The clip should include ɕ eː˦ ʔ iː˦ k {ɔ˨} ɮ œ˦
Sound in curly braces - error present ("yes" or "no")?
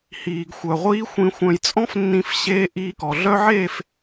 no